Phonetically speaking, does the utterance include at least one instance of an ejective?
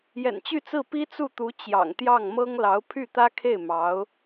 no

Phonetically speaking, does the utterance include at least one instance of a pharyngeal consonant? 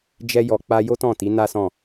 no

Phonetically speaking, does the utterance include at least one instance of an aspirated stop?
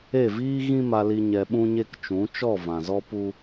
no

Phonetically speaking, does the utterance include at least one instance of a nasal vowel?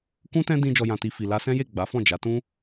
yes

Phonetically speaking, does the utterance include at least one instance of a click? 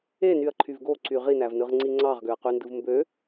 yes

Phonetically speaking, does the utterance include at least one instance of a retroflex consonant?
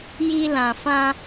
no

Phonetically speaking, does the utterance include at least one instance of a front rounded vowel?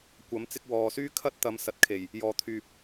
yes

